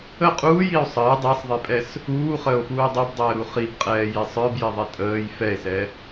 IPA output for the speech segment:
ə qʼ uː j i o̯ sˤ əː dˤ i sˤ ðˤ i pʼ ɛ s | uː χ əː o̯ f uː dˤ o b dˤ əː ɾ u χ i b qʼ ɛː j ɛ sˤ ə˞ b j ɛ ðˤ ɛ tʼ əː j f ɛ e̯ s ɛ

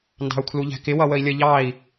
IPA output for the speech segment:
n d ɑ̤ u̯ kʰ l u ʎ æ̤ k ɪ w ʌ w ə i̯ lʲ ə ʎ ɑ i̯

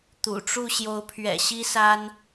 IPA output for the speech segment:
t̪ ṵ˨˩ ʈ͡ʂ u˥˨ ɕ j o˨˦ ʊ̯ pʰ ɥ ɛ̰˨˩ ɕ i˦ s a˦ n

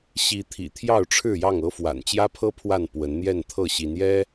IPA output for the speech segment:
ɕ i˨˦ t̪ʰ ḭ˨˩ t̪ʰ j ɑ˥˨ ʊ̯ ʈ͡ʂʰ ɻ̩˥˨ j ɑ˥˨ ŋ ɤ˦ f w a̰˨˩ n t͡ɕ j ä˦ pʰ ɤ˦ pʰ w a˥˨ n p w ə˨˦ n n̪ j ɛ˥˨ n t̪ʰ ɤ˥˨ ɕ i˨˦ n j ɛ˦

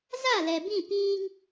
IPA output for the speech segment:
z a˦˨ l ɛ˨ b ĩ˦˨ p iː˦ ŋ

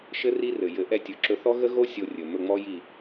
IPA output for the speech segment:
ʃ ɘ˦ r i˦ r ɘ˨ j ɘ˨˦ ʔ ɛ˧ tʲ ɵ˨ ǁ ɵ˧ θ ɔ˦ ɣ ə˦ ɣ o˦ sʲ o˧ rʲ ɵ˨ m ɵ˦˨ ŋ͡m ɔ˦ j i˦˨

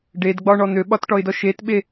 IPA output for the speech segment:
ɖ e d ɡ͡b ɒ ɳ ɔ n̪ ø ɓ ɒ t ʈ ɔ ɪ̯ d ɔ ʃ e t ɓ e

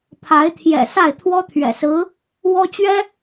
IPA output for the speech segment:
pʰ a˧˥ ɪ̯ t̪ʰ j ɛ̰˨˩ s a˥˩ ɪ̯ t̪ʰ w ɔ˥ t̪ʰ ɥ ɛ̰˨˩ s ɹ̩˧˥ | w ɔ˥ t͡ɕ ɥ ɛ˥

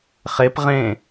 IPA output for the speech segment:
χ e p ʁ ẽ

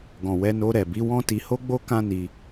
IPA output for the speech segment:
ɡ ɔ̃˨ w ɛ˧ n o˧ ɾ ɛ˨ b i˨˦ w ɔ̃˦ t i˧ h o˦ ɡ͡b o˦ k ã˦ n i˧

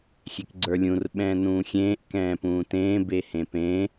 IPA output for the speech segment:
xʲ e k ɡ͡ǀ ə˞ lʲ ũ r ɓ ɛ̃ː n ũː xʲ ẽː ʔ k ɛ̃ː p ũː t ẽː b e h ẽ p ẽ

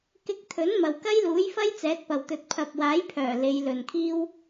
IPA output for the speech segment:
k ɪ˧ k̚ t̪ʰ ɵ˨˥ n m ɐ˨ w k ɐ˥ j l uː˨˥ j f ɐ˥ j t͡s ɛː˨˥ t̚ p ɐ˨ w t̪ ɵ˨ t̚ pʰ ɐ˨ p̚ w aː˨˥ j pʰ œː˨˩ l e˨˧ j l ɵ˨ n kʰ iː˥ w

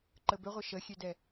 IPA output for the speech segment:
ǃ ə b ʏ ʁʷ ɪ ʃ ə xʲ ø d ɛ

